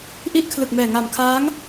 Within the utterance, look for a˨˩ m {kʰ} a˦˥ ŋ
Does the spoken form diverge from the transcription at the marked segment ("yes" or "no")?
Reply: no